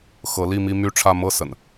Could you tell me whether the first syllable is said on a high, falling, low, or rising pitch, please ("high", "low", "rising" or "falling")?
rising